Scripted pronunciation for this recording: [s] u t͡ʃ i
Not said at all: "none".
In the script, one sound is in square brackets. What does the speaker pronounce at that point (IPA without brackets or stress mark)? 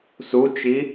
s